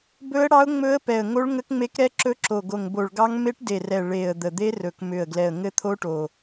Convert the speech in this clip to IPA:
b ɵ˦˥ ə̯ ɽ ɑ˦˥ ʊ̯ ŋ͡m ɵ˦˥ ə̯ p ɛ˨˩ ə̯ ŋ o˦˥ ɭ ŋ ə˦˥ k ŋ͡m e˦˥ k ɾ ɛ˦˥ ǁ ɵ˦˥ ǁ o˨˩ ɡ o˨˩ ŋ b o˨˩ ɭ ɡ ɑ˦˥ ŋ m e˦˥ ʈ d e˨˩ r ɛ˨˩ ɭ e˨˩ ə̯ d̪ ə˨˩ d̪ e˦˥ r ɵ˨˩ k m ʏ˨˩ ə̯ ɡ l ɛ˨˩ ə̯ ŋ ɘ˦˥ t̪ʰ o˦˥ ʈ o˨˩

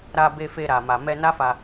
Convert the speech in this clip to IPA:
ɾ a˧ b e˧ f e˧ ɾ a˨ m a˨ m ɛ˧ n a˦ f a˧

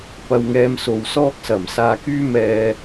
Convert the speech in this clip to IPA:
p ɐ˧ w ŋ ɛː˧ m s o˨ w s ɔː˥ k̚ s ɐ˨˩ m s aː˧ k yː˥ m ɛː˧

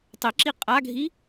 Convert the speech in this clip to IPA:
tˤ e ǁ i qʼ a ɡʱ i

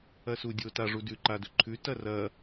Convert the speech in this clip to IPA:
ɐ s u dʲ o t a ʐ u d ʉ ǃ a d ɵ ǃʰ ʉ t ɐ r ɐ

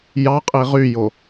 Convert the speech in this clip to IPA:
j ɑ qʼ i ʁ y j o

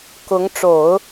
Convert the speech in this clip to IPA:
k ʊ˧˥ ŋ ʈ͡ʂ o˨˩˦ ʊ̯

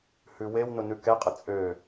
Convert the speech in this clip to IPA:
h ʉ w e w n ʊ n ʉ k ɛ qʼ ə t͡sʼ ø

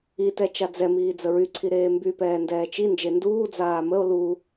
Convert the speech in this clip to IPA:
i t ɛ t͡ʃ a d͡z ɛ m iː d͡z ə ɹ y ǀʰ i ɾ eː m b y p ɛː n d ɛː t͡ʃ i n d͡ʒ e n d uː d͡z aː m ə o̯ l u

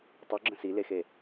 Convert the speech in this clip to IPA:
tˤ y ɡ͡ǁ ə̃ s i l e x e

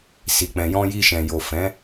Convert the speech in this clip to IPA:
s i˨ k͡p ɛ̃˨ j ɔ̃˧ j i˧ ʃ ɛ̃˨ j o˨ f ɛ̃˨˦

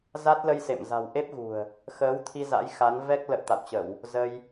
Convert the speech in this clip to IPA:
z a˦˥ t̚ l ə˧ j s ḛ˧˨ m z a̤˨˩ w ʔ e˦˥ p̚ ɣ ṳ˨˩ ə̯ | x əː˨˦ w t̪ʰ i˧ z a̰˧˥ j x a˨˦ n v ɛ˦˥ k̚ l ə̰ː˧˨ t̪ a̰˧˨ w t͡ɕ ə˧˩˨ w | z ə˧ j

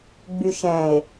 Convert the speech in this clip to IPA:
ɡ͡b y ʃ ɛ̃ e̯

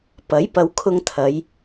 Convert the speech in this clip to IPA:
p ɐ˨˥ j p ɐ˨˧ w kʰ ʊ˧ ŋ t̪ʰ ɐ˨˧ j

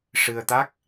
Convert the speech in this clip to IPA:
ʂ ɨ˧ ə̯ t̪ a˦˥ k̚

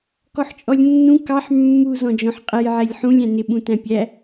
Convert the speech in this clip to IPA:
k ɔ ħ t͡ʃʼ ɔ lʲ nː ũ k ɑ ħ mː u z ɔ̃ d͡ʒ ɔ̃ ħ qʼ ɛ j ʕ ɛ lʲ ħ ũ lʲ æ̃ n ɪ ɓ ũ t æ̃ pʲ æ

